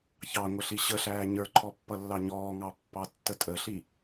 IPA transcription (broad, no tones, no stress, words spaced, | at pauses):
çɑŋʷəɬi ɕəɬæː ɲə˞ǃʰɔpːʌlːɑ ɲɔːŋɑpːɑtːə tʼəɬi